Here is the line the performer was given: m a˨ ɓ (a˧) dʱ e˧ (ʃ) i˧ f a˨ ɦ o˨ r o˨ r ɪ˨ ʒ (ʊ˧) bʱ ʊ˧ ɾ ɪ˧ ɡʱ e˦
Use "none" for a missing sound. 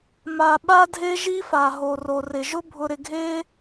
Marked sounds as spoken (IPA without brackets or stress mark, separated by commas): a˧, ʒ, ʊ˦